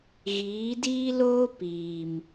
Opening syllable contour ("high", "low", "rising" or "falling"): rising